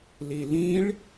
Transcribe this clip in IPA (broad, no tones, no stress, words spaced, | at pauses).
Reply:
lilĩɭ